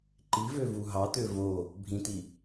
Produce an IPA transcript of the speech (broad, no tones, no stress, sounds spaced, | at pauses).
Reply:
ǃ i v ø v u ɦ ɑ t̪ ø v o | bʱ ĩ t̪ i